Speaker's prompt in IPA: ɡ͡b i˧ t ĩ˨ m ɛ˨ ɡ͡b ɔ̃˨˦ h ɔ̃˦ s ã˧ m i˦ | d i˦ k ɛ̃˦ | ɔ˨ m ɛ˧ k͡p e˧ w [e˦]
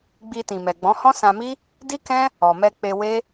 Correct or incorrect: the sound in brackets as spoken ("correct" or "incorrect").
correct